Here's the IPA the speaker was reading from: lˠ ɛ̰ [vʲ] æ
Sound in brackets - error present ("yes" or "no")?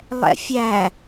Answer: yes